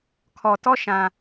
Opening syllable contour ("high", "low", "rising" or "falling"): low